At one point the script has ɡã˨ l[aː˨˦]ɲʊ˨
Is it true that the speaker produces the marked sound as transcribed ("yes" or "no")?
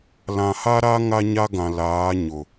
yes